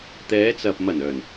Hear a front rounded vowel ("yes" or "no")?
yes